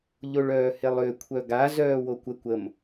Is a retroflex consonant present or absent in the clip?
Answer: present